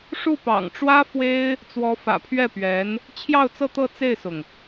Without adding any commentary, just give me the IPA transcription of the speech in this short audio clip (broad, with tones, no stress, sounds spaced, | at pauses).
ʂ u˥˩ p ɑ̰˨˩ ŋ ʈ͡ʂ w ä˥ f w e˥ ɪ̯ | t͡s w ɔ˧˥ f ä̰˨˩ pʰ ɥ ɛ˥˩ p ɥ ɛ˧˥ n | t͡ɕʰ j ɑ˥˧ ʊ̯ t͡s ɤ˥˧ t̪ ɤ˥˧ t͡s e˥˩ ɪ̯ s ʊ˩ ŋ